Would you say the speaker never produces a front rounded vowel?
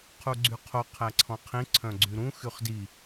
no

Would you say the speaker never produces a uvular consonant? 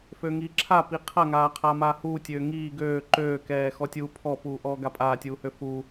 no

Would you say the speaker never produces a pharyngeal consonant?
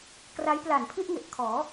yes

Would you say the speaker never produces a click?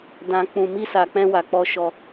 yes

